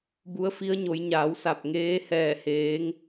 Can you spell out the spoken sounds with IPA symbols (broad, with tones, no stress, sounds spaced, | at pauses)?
b u˧˥ ə̯ f i˧˥ ə̯ ɲ o˩˧ j ɲ aː˩˧ w s a˧˩ p̚ ŋ eː˧˥ h ɛː˧˩ h eː˩˧ ŋ